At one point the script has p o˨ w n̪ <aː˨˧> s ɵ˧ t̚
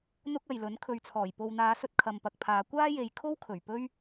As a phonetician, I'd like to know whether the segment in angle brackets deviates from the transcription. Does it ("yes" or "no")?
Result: no